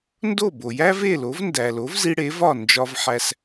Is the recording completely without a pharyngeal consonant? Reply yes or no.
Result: no